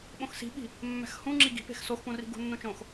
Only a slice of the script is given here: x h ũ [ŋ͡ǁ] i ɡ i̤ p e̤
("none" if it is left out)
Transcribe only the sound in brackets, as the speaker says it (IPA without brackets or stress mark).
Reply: ŋ͡ǁ